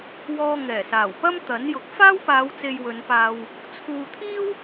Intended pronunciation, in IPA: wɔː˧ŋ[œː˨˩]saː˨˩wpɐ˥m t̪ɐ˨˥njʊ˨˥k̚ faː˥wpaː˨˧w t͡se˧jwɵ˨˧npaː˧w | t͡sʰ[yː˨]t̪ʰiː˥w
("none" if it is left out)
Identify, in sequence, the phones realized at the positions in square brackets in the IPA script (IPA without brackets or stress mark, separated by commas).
ɛː˨˩, uː˨